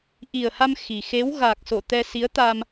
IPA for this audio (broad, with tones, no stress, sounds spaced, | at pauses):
ʔ i˨˩ ə̯ h a˧ m x i˨˩ x e˨˦ w ɣ aː˨˩ k̚ s o˧˩ t̪ ɛ˧ s i˨˦ ə̯ t̪ a˧ m